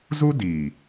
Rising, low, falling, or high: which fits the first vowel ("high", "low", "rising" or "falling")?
high